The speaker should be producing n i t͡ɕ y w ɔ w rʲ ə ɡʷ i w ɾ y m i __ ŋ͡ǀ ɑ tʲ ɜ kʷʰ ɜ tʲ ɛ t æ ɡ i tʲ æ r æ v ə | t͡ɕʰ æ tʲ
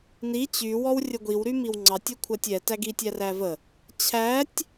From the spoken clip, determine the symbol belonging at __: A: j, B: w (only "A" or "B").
B